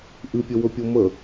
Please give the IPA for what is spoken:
ʔɨpʲɵwɵpʲo mə

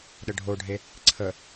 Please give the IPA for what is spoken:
ɗəɖʱoɖʱe | ǀʰə

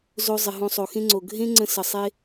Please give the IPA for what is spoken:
zo˨ zˤɪ˩ɦõ˨ sˤo˩xẽ˥ŋ͡ǀo˩ ɡʱẽ˥ ŋ͡ǀə̃˦ sə˩ sˤe˦

